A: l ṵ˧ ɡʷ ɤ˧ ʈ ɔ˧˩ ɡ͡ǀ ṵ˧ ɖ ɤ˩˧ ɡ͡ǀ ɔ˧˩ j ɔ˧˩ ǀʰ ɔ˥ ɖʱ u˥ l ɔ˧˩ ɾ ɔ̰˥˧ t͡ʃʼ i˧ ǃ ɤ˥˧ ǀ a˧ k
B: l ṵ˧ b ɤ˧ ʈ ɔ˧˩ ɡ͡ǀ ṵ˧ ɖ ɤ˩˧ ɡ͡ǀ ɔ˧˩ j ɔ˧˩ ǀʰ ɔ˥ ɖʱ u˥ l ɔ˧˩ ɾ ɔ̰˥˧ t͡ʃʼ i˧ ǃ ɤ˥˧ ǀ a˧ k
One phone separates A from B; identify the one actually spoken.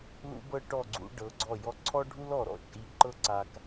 B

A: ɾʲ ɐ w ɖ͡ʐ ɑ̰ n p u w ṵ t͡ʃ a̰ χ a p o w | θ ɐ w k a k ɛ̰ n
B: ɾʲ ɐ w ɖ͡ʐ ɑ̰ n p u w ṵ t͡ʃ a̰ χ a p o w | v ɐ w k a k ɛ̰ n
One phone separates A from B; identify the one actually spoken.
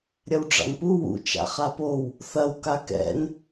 A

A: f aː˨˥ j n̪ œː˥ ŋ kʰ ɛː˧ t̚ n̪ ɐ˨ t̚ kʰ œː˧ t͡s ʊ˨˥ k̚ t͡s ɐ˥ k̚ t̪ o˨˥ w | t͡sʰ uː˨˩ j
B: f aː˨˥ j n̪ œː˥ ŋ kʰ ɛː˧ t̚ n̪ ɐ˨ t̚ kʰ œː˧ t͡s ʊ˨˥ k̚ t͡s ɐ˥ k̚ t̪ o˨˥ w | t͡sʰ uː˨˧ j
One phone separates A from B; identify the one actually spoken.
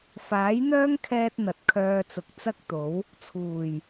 A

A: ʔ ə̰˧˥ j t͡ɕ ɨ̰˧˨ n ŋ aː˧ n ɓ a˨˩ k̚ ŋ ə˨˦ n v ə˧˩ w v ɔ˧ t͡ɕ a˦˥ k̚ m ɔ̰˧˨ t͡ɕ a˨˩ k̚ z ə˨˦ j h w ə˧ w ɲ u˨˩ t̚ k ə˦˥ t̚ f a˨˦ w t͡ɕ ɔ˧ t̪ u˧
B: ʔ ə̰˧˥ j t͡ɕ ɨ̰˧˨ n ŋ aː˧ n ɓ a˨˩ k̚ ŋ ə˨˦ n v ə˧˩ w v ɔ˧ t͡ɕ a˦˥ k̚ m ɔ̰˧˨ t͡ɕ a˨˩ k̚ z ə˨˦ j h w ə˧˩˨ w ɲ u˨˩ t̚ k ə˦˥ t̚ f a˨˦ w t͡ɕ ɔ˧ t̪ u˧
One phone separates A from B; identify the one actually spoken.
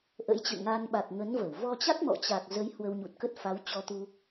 A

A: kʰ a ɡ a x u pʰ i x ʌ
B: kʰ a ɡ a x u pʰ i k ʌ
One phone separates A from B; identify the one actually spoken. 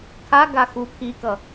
B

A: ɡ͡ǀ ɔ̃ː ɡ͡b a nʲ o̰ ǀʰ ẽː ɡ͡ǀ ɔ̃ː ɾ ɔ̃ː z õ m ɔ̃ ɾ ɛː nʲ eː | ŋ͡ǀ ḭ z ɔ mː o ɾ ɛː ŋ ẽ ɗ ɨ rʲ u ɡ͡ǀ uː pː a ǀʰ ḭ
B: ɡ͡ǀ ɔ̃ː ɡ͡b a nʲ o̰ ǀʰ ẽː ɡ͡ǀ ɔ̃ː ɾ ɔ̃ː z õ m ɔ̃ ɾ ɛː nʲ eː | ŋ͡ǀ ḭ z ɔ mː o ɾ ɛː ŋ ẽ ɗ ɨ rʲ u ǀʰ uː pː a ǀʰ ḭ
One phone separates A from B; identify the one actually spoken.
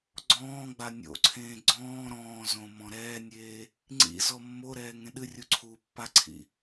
B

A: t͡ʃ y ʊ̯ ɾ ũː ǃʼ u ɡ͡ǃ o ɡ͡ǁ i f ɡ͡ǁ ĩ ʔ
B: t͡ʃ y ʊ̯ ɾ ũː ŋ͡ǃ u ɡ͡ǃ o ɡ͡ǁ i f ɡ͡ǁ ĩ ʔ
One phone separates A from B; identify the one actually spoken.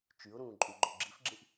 A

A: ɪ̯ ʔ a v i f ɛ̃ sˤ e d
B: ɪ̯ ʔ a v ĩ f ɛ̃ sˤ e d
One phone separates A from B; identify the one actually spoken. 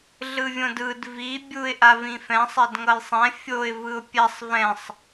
B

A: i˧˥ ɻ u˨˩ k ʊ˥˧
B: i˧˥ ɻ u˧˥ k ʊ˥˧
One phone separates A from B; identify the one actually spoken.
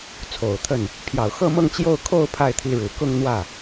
A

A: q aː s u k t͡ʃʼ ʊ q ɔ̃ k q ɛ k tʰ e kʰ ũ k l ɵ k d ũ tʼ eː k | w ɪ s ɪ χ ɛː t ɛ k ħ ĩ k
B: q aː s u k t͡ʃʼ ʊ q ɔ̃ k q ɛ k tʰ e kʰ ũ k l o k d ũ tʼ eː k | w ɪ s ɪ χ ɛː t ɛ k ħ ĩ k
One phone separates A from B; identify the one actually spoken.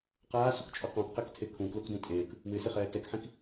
B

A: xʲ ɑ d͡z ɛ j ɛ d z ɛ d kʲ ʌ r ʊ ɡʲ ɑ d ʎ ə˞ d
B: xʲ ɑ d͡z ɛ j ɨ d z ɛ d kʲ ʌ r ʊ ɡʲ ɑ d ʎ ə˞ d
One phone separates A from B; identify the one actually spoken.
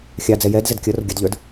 A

